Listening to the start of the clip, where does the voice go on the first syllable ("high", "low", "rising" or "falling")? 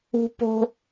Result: high